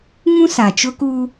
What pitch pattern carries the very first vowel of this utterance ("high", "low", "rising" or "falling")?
high